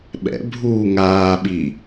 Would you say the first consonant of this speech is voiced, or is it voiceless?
voiced